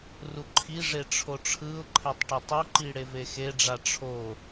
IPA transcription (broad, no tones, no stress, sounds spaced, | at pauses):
r u ǃʰ i ʐ e ʈ͡ʂʰ o ʈ͡ʂʰ ɯ ʊ̯ ǃʰ ɛ tˤ ʈ ɛ tˤ o ǃ i ɽ e v e x e ɖ͡ʐ a ʈ͡ʂʰ o